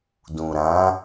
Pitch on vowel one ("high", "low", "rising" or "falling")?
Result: low